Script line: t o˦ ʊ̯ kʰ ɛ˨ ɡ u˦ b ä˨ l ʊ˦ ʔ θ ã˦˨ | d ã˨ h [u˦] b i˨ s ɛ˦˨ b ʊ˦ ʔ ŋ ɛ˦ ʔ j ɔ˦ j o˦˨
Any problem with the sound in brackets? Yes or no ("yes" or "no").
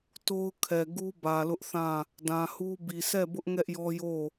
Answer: no